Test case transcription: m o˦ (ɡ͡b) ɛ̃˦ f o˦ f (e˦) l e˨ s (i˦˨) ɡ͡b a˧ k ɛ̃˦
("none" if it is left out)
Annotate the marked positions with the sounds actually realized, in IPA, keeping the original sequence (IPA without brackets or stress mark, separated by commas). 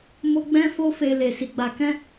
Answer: ɡ͡b, e˧, i˨